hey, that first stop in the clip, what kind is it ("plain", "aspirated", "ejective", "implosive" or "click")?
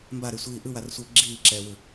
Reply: plain